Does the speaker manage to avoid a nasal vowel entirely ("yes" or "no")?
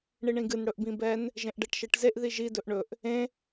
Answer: no